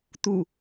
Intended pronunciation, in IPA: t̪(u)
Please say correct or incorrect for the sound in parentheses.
correct